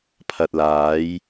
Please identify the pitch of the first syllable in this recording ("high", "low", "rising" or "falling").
low